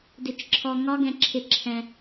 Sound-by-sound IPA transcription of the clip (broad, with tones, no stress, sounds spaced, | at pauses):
d ɪ˧˩˧ t͡ʃ ǁʰ ɔ˧ ŋ ɒ˦˥ ɡ ɛ̃˧ ǁʰ ɪ˧ ǁʰ ɛ̃˧